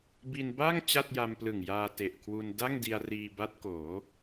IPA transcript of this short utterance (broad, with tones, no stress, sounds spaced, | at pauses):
b i˧ n b a˥˩ ŋ t͡ɕ a˥˩ t̚ j a˧ m p l ɯ˨˩ ŋ j aː˧ t e˨˩ ʔ kʰ w u˧ n d a˥˩ ŋ d i˧ a̯ r iː˧ b a˦˥ t̚ k oː˩˦